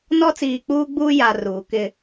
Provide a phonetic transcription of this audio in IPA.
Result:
n ɔ˦ t͡s iː˨ k͡p uː˦ ɡ͡b uː˦ j a˨ r uː˨ k ɪ˦

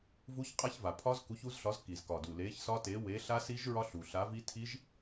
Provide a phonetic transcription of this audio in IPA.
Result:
v u˦˥ ç qʼ a˦˥ ç v a˨˩ pʰ ɒ˦˥ z k u˨˥ ç u˨˥ z ɬ ɒ˨˥ z k i˨˩ z k ɒ˨˩ d u˨˩ l e˨˥ ç s ɒ˦˥ t e˨˥ w e˨˥ ɬ a˦˥ s i˦˥ ʒ ɹ ɒ˦˥ ɬ u˨˩ ɬ a˨˥ v i˦˥ tʰ i˦˥ ʒ

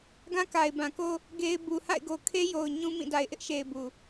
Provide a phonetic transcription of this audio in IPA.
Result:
ɡ ã˦ k a˨ ɪ̯ b ã˨ k o˦ | ɡ e˦ ɪ̯ b u˨ h a̰˦˨ ɪ̯ ɡ o˨ kʰ e˦ j o˨ ʊ̯ ɲ ũ˦ m ĩ˦˨ d a˨ ɪ̯ ʔ ɪ˦ ʔ ʃ e˨ ɪ̯ b u˨

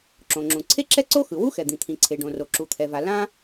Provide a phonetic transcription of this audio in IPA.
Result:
ǁ õ˩ ŋ͡ǁ ũ˩ ǀʰ e˥ ǁ ɛ˥ ǀ o˥ x ɯ˩ w u˥ x ɛ˩ d̪ ĩ˩ t̪ʰ ĩ˩ ǀʰ e˩ ɖ õ˩ r o˩ ǁ u˩ t̪ʰ ɛ˩ v a˩ l ã˥

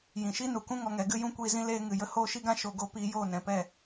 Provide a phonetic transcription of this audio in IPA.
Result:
j ĩ˨ ʃ i˦ n u˨ k ũ˦ ŋ ɔ˧ ŋ ɛ˨˦ ɡ ɨ˦ j ũ˦ kʷ iː˧ z ĩ˦ l eː˦ ŋ ɨ˧ j ə˦ h oː˦ ʃ i˦ ɡ ã˦ ʃ o˧ ɡ o˦ p iː˧ j oː˦˨ n ɛ̃˨ p ɛ˦˨

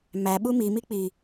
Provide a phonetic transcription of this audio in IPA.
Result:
m æ ɓ u m i m i k͡p i

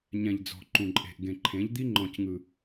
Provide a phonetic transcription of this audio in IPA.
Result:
ɲ ɛ̃˨ ʎ d͡z ɔ̤˨ ǃ ũ˨ ǃʼ e̤˨ ʔ ɡ ẽ˨ ǃʰ ẽ˨˦ ʎ d̪ i˦ ŋ͡ǃ ɔ̃˦ c ŋ ɯ˦

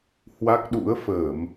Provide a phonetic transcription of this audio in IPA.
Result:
h w a˦˥ k̚ ɗ ṵ˧˥ ə̯ f əː˧˩˨ m

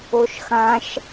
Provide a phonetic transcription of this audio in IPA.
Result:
o ʃ x ã ʃ

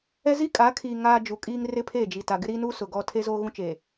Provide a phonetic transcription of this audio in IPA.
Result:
ɛ˦ z i˦ kʼ a˨˦ kʰ iː˨ ŋ aː˦ d͡ʒ u˨ kʼ iː˦ ŋ r ɪ˦ pʰ e˦˨ d͡ʒ i˨ t a˨ ɡ ɪ˦ ɾ iː˦ n uː˦ s ʊ˨ ɡ ɔ˦ tʰ e˦ z oː˦ ɣ ũ˦ t͡ʃ e˨

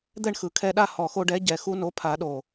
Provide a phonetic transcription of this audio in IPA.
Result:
d̪ ɛ˥˨ ɳ x ɯ˨˩˦ kʰ ɛ˧ ɗ a˥˨ h ɔ˨˩ x o˧ ɖ ɛ˩˥ ɟ ɛ˨˩ x u˧ n o˩˥ pʰ a˨˩˦ ɗ o˨˩

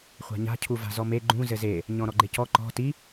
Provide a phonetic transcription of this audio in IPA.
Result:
χʷ a̤ ɲ a̤ cʰ u v a̤ z ɔ m e ɡ͡ǃ ũ z ɘ z e | ɲ ɔ̃ ɾ ɔ ɡ͡ǃ e c ɔ ǃ ɔ̤ t i

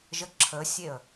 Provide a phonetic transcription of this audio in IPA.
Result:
ʒ ə ǁʰ ə sʲ e ə̯

